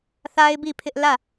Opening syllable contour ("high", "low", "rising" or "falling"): high